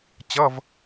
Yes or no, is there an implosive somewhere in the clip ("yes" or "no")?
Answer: no